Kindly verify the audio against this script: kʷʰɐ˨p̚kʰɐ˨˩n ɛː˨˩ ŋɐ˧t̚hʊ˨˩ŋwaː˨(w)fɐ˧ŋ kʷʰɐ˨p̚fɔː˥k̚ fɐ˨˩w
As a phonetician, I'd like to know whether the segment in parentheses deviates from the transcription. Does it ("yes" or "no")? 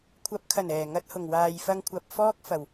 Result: yes